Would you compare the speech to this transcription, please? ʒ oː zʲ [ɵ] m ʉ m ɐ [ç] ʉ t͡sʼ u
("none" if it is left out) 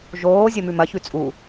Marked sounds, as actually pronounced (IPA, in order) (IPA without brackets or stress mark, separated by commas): ɵ, ç